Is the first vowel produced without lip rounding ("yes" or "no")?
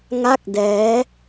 yes